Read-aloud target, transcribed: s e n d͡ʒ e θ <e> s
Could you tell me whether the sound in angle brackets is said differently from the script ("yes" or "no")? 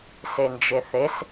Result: no